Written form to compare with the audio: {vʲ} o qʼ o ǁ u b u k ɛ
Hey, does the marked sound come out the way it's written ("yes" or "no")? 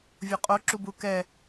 yes